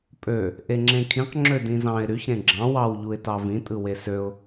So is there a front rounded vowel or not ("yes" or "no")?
yes